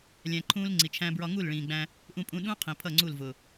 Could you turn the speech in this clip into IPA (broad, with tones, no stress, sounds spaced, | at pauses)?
lʲ æ̃˧ ǃʰ ũː˦ l ŋ͡ǀ i˨ t͡ʃʰ æ̃˦ b ɹ ɒ˧ ŋ u˦˨ l ɭ ĩː˨ ɡ͡b æ̃˧ | ʔ ũ˧ pʼ ũ˧ ɗ ũ˦ qʰ ĩ˨ pʰ ʌ˦˨ ŋ͡ǀ u˦˨ l v ʊ˨